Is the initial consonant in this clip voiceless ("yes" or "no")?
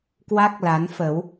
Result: yes